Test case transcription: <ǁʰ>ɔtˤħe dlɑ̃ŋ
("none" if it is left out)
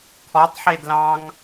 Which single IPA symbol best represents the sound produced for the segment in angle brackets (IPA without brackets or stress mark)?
kʰ